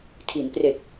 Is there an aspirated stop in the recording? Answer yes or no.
yes